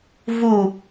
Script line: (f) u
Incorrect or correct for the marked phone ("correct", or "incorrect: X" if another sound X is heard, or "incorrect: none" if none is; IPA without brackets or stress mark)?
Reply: incorrect: v